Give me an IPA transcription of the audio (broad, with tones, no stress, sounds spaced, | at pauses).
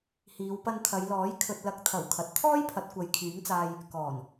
h iː˨˧ w p ɐ˧ n t̪ʰ ɐ˨˧ j l ɔː˨˥ j kʰ ɵ˨ t̚ l ɐ˨˥ k̚ t̪ʰ ɐ˨˩ w kʰ ɐ˨ t̚ t̪ʰ ɔː˥ j pʰ ɐ˨˥ t̚ kʷ ɐ˨˧ j kʰ yː˨˥ ŋ t͡s aː˧ j | k ɔː˨˩ n